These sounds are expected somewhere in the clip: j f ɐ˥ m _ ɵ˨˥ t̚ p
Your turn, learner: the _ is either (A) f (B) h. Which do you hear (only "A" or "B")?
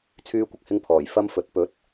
A